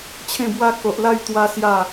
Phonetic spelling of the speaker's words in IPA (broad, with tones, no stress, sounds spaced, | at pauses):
t͡ɕʰ ẽ˥˧ b w a˦ k o˨ ʔ l a˥˧ j t̪ w a˦ s j a˥˧